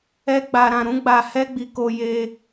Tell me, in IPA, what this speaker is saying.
ɛ˦ ɡ͡b a˧ ɾ ã˧ ɾ ũ˦ ɡ͡b a˧ h ɛ˦ ɡ͡b i˧ k o˧ j e˧

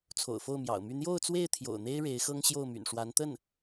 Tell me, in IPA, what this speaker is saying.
t͡sʰ o̰˨˩ ʊ̯ f o˥˩ ʊ̯ m j ɑ̰˨˩ ʊ̯ m y˥˧ n̪ j o˥˧ ʊ̯ t͡s w e˥˩ ɪ̯ t̪ʰ j o̰˨˩ ʊ̯ n̪ e˥ ɪ̯ ɻ e˧˥ ɪ̯ x ɤ˥ ŋ ɕ j o˥˩ ʊ̯ m y̰˨˩ n ʂ w a˧˥ n t̪ ə˥˩ n

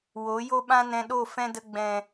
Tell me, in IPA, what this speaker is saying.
w o˨˦ j o˦ ɓ ã˦ n ɛ̃˧ ɗ o˦˨ f ɛ̃˦ d ə˧ ɡ͡b ɛ̃˨

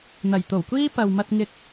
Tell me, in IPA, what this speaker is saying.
n̪ ɐ˨˩ j t̪ o˨˩ w kʷ iː˥ p ɐ˨ w m ɐ˧ t̚ ŋ ɪ˧ k̚

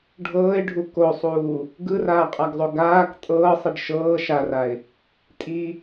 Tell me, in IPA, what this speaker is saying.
ɖʱ ɤː ɪ̯ ɖʱ u k o sˤ uː | ɡ ɯ r aː qʼ a ɡ zˤ o ɡ aː k tʼ ɤː sˤ i ɖ ʃ ɤː ʃ a r a ɪ̯ | tʼ i

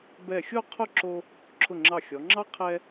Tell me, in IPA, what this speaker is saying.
b ɛ˧˩ xʲ o˥˧ qʰ ʊ˥˧ ǁ o˧ | ǁʰ ʊ˧˩ ŋ͡ǁ ɑ˧˩ xʲ ɔ˩˧ ŋ͡ǁ ɑ˥ qʰ ɛ˧

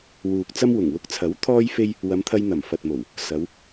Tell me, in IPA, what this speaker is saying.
w uː˨ k̚ t͡s ɐ˥ m w ʊ˨˩ ŋ w ʊ˧ k̚ t͡sʰ ɐ˨˥ w t̪ʰ ɔː˥ j f e˥ j | w ɐ˨˧ m t̪ʰ ɐ˧ j n̪ ɐ˨˩ m f ɐ˨ t̚ m o˨˩ w | s ɐ˨˧ w

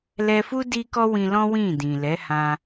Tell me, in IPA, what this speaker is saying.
l ɛ˧ f u˦ d i˦ k ɔ˦ w ĩ˧ l ɔ̃˦ w ĩ˦˨ d ĩ˨ l ɛ˨˦ h ã˧

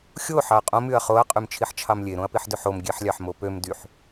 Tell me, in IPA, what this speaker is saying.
xʲ o ħ ɑ ɐ̯ qʼ õ m y ɐ̯ χ o ɐ̯ qʼ y m t͡ʃʰ i ħ t͡ʃʰ ɑ m lʲ e ɾ õ ɐ̯ p i ħ d ø ħ o m ɡʲ e ħ lʲ ɑ ħ m o p ø m d y ħ

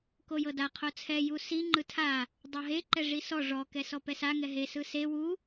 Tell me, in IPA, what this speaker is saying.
k o j ɤ d a qʰ o t͡sʰ ɛ j u s i ŋ͡ǃ ɯ tʰ a | dˤ ɤ ɦ e ǃ ɛ ʐ i s ɔ ʐ ɔ k ɛ s ɔ p ɛ s a ŋ ɛ ɦ e s ɯ s e w u

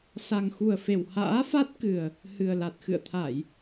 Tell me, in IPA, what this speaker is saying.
s a˨˩ ŋ x u˨˩ ə̯ f e˨˩ w h a̰ː˧˥ f a˦˥ t̚ k ɨ˨˩ ə̯ | h ɨ˨˩ ə̯ l a˨˩ t̚ x ɨ̰˧˨ ə̯ t̪ʰ a˧˩˨ j

